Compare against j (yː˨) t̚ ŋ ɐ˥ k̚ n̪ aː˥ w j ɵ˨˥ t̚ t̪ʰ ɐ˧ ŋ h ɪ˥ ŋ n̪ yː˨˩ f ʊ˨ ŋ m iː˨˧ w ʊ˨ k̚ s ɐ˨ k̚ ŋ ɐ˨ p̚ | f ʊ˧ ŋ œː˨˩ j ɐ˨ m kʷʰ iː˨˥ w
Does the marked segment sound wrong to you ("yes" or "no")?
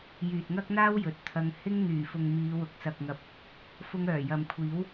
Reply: no